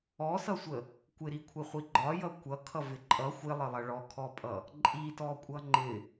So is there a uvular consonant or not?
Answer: yes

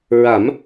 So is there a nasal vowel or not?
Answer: no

